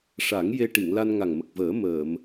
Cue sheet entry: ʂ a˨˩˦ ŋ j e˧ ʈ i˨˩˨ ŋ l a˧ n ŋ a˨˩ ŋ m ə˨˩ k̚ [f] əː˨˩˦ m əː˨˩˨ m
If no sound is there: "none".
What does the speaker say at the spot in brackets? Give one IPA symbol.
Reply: v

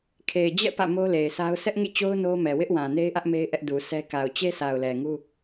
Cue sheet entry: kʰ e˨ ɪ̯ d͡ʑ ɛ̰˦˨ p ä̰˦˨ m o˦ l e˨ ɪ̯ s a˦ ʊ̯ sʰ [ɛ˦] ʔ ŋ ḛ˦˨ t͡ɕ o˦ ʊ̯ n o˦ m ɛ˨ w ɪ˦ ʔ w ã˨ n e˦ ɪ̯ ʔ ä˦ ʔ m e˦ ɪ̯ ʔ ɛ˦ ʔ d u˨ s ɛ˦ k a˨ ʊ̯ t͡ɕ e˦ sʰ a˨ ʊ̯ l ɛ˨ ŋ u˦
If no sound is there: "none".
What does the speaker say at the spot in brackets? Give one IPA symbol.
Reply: ɛ˦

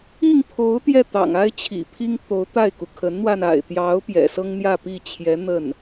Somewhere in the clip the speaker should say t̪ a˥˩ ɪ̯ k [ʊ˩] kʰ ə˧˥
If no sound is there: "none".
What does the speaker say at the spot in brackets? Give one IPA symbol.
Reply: u˩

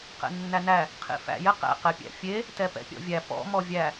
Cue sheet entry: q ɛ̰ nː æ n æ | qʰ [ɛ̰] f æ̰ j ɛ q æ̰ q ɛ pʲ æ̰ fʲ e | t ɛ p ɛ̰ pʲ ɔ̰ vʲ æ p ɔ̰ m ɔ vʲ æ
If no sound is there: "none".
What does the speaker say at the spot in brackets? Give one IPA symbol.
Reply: ḛ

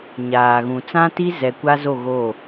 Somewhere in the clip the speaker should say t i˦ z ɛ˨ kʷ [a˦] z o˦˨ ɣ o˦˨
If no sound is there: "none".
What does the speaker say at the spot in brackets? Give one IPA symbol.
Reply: a˦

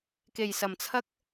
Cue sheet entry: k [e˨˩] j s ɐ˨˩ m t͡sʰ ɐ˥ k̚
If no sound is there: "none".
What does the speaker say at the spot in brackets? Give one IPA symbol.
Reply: e˨˩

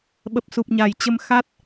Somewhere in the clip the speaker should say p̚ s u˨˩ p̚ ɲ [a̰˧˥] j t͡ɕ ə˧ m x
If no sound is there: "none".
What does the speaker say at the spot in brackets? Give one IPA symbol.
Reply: a˨˩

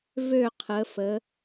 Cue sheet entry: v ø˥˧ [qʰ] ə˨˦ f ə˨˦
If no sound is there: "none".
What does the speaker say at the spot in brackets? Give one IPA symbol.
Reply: qʰ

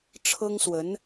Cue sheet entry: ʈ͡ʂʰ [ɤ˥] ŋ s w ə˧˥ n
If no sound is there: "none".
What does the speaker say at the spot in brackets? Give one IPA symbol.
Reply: ɤ˥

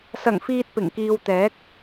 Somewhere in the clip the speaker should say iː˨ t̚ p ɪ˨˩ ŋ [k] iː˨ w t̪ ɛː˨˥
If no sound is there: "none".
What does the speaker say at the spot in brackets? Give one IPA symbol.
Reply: k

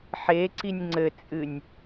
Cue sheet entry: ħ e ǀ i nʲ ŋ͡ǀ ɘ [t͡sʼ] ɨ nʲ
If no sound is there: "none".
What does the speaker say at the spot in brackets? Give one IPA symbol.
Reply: t͡sʼ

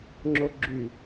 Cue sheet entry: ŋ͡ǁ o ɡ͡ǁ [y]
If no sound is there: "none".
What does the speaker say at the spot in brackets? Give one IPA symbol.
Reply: y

